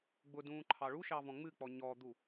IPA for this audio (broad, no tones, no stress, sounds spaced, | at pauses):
ɡ͡b ʊ d ũː ǃʰ ɑ ɭ u ʃ ɑ v ɔ̃ ŋ͡m ɨ k͡p ɔ ɲ ɔ d̪ u